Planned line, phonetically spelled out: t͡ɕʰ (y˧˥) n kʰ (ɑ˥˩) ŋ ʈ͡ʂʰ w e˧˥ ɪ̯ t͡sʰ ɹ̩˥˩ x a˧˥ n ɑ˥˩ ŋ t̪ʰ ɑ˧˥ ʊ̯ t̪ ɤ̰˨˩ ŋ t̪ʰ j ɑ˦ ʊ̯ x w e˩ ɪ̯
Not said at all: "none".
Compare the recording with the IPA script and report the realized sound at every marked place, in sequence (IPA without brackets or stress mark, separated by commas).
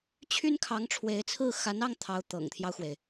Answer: y˥, ɑ˧˥